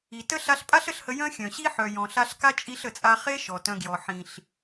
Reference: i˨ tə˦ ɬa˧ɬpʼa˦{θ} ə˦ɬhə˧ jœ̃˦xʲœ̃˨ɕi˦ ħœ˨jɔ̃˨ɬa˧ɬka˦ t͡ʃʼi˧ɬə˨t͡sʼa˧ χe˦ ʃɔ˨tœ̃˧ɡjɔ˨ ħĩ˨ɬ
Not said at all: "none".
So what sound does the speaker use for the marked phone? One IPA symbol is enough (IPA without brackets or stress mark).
ɬ